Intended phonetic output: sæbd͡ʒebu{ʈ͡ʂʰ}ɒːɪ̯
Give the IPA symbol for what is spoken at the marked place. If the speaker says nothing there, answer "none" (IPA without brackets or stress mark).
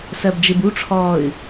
ʈ͡ʂʰ